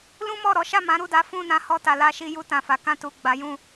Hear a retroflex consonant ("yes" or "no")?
no